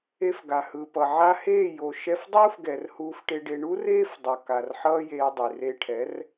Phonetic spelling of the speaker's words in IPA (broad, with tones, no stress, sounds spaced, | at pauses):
e˧ f ɡ a˨ h ɯ˨ p ʌ˨ ʕ a˧ h eː˦˨ j o˨ ʃ ɛ˧ f dˤ uː˦ f ɡ ɛ˨ r h uː˧ f ʈ e˧ ɖ e˧ ɳ u˦ r eː˦ f dˤ ʌ˨ k a˨ r ħ ʌː˦ j eː˧ dˤ i˨ r e˧ ʈʰ ɛ˨˦ r